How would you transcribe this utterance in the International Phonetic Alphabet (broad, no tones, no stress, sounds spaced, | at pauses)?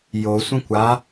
j o sʷ ə̃ kʷ a